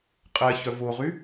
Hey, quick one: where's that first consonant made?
uvula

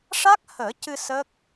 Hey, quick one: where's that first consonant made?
retroflex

